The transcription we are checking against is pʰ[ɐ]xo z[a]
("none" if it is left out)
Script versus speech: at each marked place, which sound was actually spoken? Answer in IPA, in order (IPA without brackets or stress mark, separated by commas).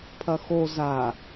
ɐ, a